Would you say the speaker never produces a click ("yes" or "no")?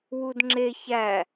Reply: no